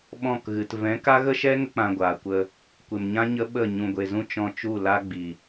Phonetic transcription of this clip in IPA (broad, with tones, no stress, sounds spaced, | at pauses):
ɓ ɔ̃˦˨ k ɣ ɨ˨ t v ɛ̃˨˦ k a˦ ɣ ə˦ ʃ ɛ˦ ŋ ə˦ k͡p ã˧ ɡʷ aː˨ kʷ ə˧ | kʷ e˨ m ɲ ã˦ ɲ ə˦ ɓ ə˦˨ ɲ ũ˨ ɡʷ e˨ z ũ˧ t͡ʃ ɔ̃˧ t͡ʃ u˦˨ l a˦ ɡ͡b i˨